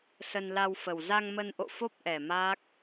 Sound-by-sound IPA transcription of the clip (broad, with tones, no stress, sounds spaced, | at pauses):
s ə˧ n l a˧ w f ə˨˩ w z a˧ ŋ m ə˧ n ʔ o̰˧˨ f o˦˥ p̚ ʔ ɛ˨˩ m aː˦˥ k̚